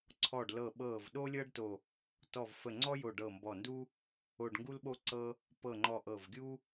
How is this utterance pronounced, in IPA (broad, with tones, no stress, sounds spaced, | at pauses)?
ǀʰ ɔ˧˩ ɖ l ɤ˧˩ ɓ ɤ˧˩ v ɗ o˥ lʲ ɤ˥ ɖ t o˧˩ | t ɔ˧˩ v f ə˧˩ ŋ͡ǀ ɔ˥ j o˧˩ ɖ ɤ˧˩ m b ɔ˧˩ n d u˥ | o˧˩ ɖ ŋ ɡ u˥ l ɓ o˥ ǀ ɤ˥ | p ɤ˧˩ ŋ͡ǃ ɔ˧˩ ʔ ɤ˧˩ v ɡʲ u˥